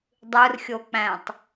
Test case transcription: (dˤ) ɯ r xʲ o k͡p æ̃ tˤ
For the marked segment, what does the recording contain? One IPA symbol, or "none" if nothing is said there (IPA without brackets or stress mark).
dˤ